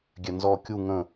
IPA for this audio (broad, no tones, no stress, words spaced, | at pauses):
ɡʲɛnzɔ kʲu ŋə̃